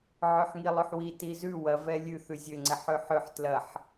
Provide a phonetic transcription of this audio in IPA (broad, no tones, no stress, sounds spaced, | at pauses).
ʕ ø ħ ŋ i lˠ ø ħ w i t i z ʉ w ɐ v ɛ lʲ ʉ θ ʉ zʲ ø ŋ͡ǀ ɛ ħ ø ħ ø ħ t l ɐ ħ